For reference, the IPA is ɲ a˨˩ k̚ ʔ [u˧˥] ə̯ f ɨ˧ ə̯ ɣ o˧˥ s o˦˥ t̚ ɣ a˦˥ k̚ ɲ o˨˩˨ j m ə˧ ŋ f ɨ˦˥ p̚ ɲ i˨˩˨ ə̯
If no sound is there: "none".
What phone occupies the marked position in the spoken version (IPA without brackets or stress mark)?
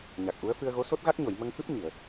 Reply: u˧˥